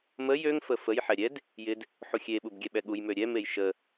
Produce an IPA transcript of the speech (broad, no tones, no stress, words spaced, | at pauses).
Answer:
məj øŋ fəfəj ħɛɾʲɛd | jɪd | ħuxʲe ɓubɡʲɛɓɛɠuj møɾʲɛ mejʃə